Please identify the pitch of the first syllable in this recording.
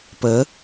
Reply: rising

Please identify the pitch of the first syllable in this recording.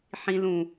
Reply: high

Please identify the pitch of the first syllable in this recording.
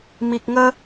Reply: low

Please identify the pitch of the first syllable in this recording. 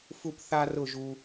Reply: falling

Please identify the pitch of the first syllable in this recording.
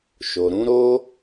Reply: low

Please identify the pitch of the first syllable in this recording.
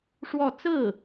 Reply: falling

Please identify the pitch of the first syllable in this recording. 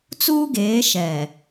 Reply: high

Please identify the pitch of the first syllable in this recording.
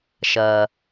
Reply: low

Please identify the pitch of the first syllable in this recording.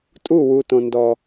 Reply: falling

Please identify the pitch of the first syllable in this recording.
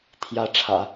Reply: rising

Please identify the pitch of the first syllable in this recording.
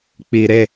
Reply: low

